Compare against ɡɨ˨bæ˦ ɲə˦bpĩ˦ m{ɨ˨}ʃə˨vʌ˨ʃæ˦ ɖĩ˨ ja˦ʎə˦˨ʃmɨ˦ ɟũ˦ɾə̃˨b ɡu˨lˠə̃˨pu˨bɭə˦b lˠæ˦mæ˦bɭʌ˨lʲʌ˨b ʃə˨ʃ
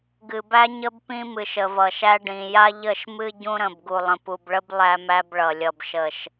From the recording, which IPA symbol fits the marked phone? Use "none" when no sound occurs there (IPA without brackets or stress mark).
ɨ˨